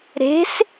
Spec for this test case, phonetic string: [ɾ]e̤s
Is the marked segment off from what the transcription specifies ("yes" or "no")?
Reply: no